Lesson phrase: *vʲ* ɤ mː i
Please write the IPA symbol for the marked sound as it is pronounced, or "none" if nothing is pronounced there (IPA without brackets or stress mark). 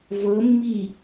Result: v